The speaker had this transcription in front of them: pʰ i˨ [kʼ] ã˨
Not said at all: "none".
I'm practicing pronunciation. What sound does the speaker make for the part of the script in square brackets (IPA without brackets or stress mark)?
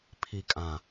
kʼ